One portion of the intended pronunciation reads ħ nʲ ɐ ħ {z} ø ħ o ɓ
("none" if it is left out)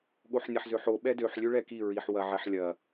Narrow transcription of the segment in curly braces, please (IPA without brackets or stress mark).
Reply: z